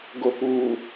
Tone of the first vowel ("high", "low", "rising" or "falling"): low